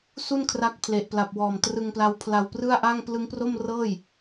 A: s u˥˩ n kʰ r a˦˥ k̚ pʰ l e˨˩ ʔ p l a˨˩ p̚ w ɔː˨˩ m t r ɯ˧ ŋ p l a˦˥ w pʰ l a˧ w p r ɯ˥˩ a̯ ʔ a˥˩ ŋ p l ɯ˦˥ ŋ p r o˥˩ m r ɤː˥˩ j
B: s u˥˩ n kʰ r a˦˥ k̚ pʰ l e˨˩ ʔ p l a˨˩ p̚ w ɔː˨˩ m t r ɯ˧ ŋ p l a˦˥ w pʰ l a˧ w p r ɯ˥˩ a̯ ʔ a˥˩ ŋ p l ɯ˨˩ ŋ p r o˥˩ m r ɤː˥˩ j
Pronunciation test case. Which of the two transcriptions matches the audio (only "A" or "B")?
A